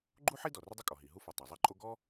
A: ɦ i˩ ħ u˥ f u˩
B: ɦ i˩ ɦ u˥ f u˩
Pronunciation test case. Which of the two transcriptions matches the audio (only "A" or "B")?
B